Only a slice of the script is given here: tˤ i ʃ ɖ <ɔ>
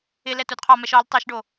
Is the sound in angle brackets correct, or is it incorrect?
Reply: incorrect